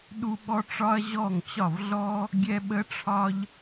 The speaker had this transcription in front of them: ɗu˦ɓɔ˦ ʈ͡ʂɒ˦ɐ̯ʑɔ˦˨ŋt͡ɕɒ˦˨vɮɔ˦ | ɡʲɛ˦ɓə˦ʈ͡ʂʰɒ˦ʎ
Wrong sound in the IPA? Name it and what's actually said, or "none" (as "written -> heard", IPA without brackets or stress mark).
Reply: none